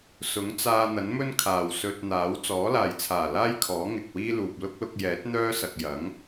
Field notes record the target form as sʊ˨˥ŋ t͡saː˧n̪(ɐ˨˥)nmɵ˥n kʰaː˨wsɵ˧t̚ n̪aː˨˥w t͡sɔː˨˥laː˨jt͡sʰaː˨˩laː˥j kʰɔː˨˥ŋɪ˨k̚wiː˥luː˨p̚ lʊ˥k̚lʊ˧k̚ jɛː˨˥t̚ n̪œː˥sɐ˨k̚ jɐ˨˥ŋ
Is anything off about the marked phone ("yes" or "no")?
no